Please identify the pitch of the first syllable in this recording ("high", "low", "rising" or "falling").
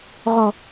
low